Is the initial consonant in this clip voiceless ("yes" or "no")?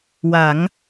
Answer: no